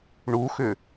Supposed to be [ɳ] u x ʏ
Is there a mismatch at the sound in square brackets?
no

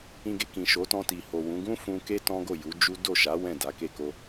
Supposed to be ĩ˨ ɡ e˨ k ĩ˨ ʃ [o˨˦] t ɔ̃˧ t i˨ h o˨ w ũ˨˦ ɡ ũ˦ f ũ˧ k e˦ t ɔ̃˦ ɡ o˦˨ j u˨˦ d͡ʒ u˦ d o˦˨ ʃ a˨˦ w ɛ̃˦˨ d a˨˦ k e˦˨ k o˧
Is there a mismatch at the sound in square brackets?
no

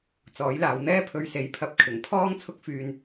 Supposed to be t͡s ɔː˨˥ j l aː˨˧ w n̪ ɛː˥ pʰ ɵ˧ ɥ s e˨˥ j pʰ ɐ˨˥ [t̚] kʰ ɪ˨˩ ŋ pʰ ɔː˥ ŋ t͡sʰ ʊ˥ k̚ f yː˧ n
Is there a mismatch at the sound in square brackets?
yes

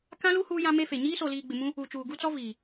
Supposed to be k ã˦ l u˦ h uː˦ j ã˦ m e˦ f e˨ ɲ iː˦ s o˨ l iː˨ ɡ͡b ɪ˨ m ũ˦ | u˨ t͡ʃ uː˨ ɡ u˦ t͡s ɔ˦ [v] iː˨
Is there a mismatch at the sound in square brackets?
no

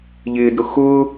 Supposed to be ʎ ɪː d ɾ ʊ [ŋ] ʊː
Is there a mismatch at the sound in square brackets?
yes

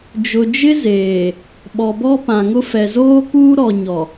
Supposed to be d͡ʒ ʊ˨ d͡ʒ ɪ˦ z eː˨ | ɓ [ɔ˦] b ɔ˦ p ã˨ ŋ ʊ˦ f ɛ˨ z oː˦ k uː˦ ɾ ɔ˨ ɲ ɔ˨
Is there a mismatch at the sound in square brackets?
yes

